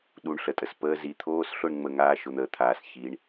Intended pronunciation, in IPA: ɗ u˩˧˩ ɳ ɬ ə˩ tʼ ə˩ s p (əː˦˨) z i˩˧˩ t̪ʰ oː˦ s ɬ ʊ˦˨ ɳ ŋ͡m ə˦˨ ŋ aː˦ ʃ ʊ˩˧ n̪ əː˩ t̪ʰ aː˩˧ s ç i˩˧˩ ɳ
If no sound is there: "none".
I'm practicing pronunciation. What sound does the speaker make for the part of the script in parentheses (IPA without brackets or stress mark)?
əː˦